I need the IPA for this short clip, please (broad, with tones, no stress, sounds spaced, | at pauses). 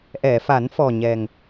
ʔ ɛ˨˩˨ f a˨˩˦ n f ɔ˨˩ ɲ ɛ˨˩ ŋ